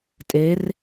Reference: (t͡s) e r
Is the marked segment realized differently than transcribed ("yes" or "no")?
yes